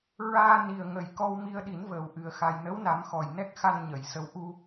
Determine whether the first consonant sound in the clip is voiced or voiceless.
voiced